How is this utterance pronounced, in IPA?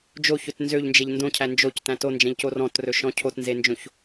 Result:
d͡ʒ o ç ɵ t n z ø ʎ n d͡ʒ e ʎ n d õ cʰ æ n d͡ʒ o c t æ̃ t o n d͡ʒ ɛ̃ ʎ c o r ɔ̃ t r ɵ ʃ ɔ̃ cʰ o t n z e n d͡ʒ õ ç

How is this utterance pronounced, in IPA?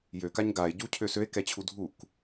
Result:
j ø k a ɲ ɡ a e̯ ɟ u cʰ ø s ø e̯ k ɛ t͡ɕʰ u dʱ u k

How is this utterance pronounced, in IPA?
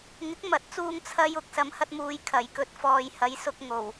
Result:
ŋ ɪ˨˥ k̚ m ɐ˨˥ t̚ t͡s uː˧ ŋ t͡sʰ ɐ˧ j ʊ˨˥ k̚ s ɐ˨˥ m h ɐ˧ t̚ m uː˨˧ j kʰ ɐ˨˩ j k ɵ˨˥ t̚ f ɔː˨ j h ɐ˨˥ j s ʊ˧ k̚ ŋ o˨˩ w

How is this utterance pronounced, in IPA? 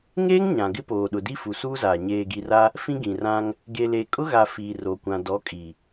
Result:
ŋ eː˦ ŋ ɲ ã˨ ɡ ɪ˦ p oː˨ ɗ ʊ˨ d i˦ f u˨ s uː˦ z aː˨ ɲ eː˨ ɡ i˨ r a˦ | f ĩ˦ ɡ ĩ˨ r ã˦ ŋ | ɡ e˨ l e˨ kʼ ʊ˦ ɣ a˨ f iː˨ r o˨ kʷ ã˨ d ɔ˨˦ kʼ i˨

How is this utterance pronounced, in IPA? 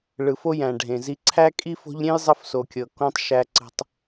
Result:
ɭ ɯ˨ f o˦ j æ̃˨ ɖʱ ẽ˨ z i˦ ǀʰ æ˦ kʼ i˦ f o̤˦ ʎ ɾʲ ẽ˦ j zˤ ə˦ f s o˨ kʲ ɤ˨ k õ˦ tˤ ʃ æ˨ ǀ ə̤˨ tˤ

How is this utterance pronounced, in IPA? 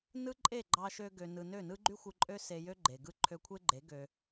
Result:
n ɯ˦ ǃʼ e˦˨ ɡ͡ǃ ɑ˧ ʃ ø˧ ɡ ø˨ n ɯ˨ n ø˦˨ n ɯ˦ ɡ͡ǃ y˦ xʷ ɯ˧ ǃʼ ø˦ s e˧ j ø˦ ɡ͡ǃ e˨ ɡ ɯ˦ ǃʰ ø˧ kʷʰ e˦ ɡ͡ǃ e˨˦ ɡ ø˧

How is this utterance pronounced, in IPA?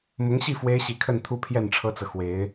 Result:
m ʊ˧˥ ŋ ɕ i˥˩ f w e˥ ɪ̯ ɕ i˧˥ kʰ ə˥˧ n t̪ʰ u˥˧ pʰ j ɛ˥˩ n ʈ͡ʂʰ ɤ˥ t͡s ɤ˨ x w e˧˥ ɪ̯

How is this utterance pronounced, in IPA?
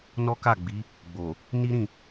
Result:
n ɔ˦ k a˦˨ ɡ͡b i˨˦ | ɡ͡b o˨ | n i˦ ɾ ĩ˦˨

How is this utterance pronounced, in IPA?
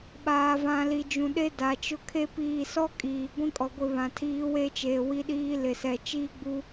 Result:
ɓ aː˨ v ã˨ l i˨ d͡ʒ ũ˨ ɗ e˦ d a˨ t͡ʃ ʊ˦ kʰ e˦ p iː˦˨ s ɔ˦ kʼ iː˨ ɡʷ ĩ˦ kʼ ɔ˨ ɡʷ ɪ˦˨ β ã˨ tʰ iː˦ w e˦ t͡ʃ eː˨ w i˦ ɗ iː˦ l ɪ˨ s ɛ˨ t͡ʃ iː˦ ɡ͡b u˦

